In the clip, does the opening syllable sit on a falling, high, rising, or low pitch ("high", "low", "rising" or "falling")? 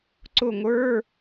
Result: falling